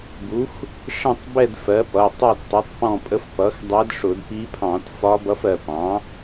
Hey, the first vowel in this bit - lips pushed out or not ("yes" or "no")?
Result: yes